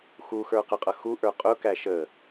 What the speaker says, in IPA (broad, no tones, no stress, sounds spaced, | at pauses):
x u x ə˞ q ə qʼ ʌ x u ʔ ə˞ qʼ ʊ k æ ʃ ə